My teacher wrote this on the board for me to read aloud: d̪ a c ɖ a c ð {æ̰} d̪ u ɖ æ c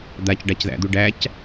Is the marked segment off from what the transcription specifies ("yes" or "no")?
no